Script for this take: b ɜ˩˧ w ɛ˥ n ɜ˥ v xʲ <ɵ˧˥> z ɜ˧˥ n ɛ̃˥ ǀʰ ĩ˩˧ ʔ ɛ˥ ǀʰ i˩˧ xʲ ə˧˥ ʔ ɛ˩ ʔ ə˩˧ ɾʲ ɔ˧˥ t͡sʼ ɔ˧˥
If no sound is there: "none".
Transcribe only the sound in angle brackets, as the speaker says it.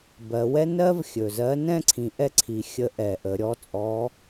ɵ˩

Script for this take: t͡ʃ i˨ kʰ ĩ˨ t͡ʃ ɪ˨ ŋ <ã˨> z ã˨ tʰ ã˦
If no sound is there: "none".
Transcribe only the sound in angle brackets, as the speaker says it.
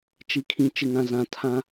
ã˨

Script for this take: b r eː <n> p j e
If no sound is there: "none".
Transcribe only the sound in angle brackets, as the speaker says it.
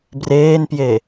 n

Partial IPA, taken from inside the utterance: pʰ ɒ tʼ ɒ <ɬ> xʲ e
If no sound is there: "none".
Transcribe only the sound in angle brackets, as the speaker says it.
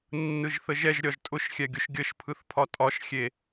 ʃ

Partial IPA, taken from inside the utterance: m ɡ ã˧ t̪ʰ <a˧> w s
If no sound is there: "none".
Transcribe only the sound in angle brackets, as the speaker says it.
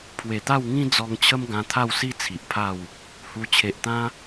a˥˧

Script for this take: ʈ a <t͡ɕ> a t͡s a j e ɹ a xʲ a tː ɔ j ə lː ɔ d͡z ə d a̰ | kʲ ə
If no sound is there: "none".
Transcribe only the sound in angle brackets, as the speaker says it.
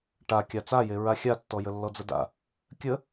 kʲ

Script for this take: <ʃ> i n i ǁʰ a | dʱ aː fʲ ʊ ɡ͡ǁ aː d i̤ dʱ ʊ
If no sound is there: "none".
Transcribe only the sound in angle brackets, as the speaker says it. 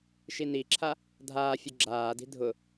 ʃ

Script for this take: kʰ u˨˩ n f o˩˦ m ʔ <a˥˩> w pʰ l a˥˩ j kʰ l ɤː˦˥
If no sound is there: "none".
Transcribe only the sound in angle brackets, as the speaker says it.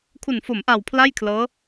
a˨˩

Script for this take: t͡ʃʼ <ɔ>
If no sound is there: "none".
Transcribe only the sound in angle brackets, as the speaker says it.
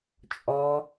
ɔ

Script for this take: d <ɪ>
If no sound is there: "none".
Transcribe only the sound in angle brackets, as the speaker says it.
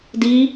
i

